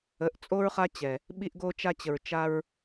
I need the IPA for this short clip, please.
ə˨˦ ʔ t͡sʼ o˦ ɹ χ a˦ t͡ɕ ɛ˨ | ɓ i˧ ʔ ɡ o˧ t͡ʃ a˧ t͡ɕ ə˨ ɹ t͡ʃ a˧ ɹ

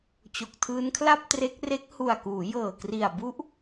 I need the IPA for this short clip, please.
t͡ɕ o˨˩ k̚ tʰ ɯː˦˥ n kʰ l a˥˩ p̚ t r e˦˥ k̚ r e˦˥ k̚ h u˨˩ a̯ k uː˩˦ j ɤː˨˩ k r i˨˩ a̯ b u˦˥ ʔ

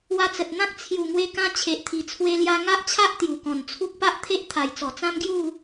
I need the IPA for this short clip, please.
w a˧ t͡s ə˨ t̚ n̪ ã˦ k̚ t͡sʰ j u˨˩ ŋ w e˧ k ã˧ t͡ɕʰ e˨ ʔ t̪ʰ i˨˩ t͡sʰ w e˧ l j a˧ ŋ a˦ ʔ t͡ɕʰ a˦ ʔ t̪ j u˨˩ k ɔ̃˨˩ n t͡sʰ u˦ k̚ p a˦ ʔ t̪ʰ e˦ ʔ t̪ʰ a˨˩ j t͡s ɔ˨˩ t͡s ã˦ m ɡ j u˥˧

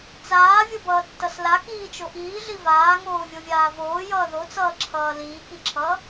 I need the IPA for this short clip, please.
t͡s aː vʲ o b ʌː tː ʌ s l a k iː t͡ʃ o ʔ iː ɮ i v aː ŋ oː vʲ o vʲ aː v oː j ʌː ð o t͡s ʌː ǁʰ ʌː l iː k i ǁʰ ʌː

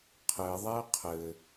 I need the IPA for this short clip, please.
qʰ ɘ ðˤ ɛ qʰ ɘ

